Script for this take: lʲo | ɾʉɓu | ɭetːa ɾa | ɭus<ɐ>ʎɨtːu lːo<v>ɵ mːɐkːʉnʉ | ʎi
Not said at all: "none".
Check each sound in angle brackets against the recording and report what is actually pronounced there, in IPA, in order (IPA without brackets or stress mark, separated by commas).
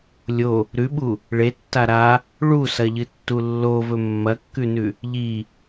ɐ, v